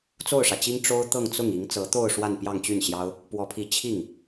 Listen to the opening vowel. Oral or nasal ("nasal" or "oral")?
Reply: oral